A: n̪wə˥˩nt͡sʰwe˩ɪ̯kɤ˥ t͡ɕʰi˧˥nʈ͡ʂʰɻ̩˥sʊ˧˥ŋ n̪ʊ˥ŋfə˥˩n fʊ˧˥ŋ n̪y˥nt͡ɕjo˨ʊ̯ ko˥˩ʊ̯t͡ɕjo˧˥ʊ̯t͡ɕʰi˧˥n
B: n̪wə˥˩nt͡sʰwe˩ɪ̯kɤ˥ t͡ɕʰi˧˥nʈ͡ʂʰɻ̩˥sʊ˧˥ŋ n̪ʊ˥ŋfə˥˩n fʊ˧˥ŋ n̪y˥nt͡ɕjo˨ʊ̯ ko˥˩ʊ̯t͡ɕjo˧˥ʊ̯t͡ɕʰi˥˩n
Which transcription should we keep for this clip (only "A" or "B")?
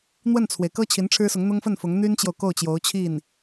B